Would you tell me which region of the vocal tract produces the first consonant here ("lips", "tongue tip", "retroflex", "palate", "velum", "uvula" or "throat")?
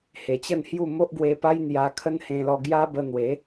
throat